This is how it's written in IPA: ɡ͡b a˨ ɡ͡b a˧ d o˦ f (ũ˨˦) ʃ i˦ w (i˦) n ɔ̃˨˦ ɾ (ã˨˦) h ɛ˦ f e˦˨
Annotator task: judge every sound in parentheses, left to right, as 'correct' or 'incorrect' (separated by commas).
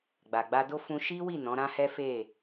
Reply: incorrect, incorrect, incorrect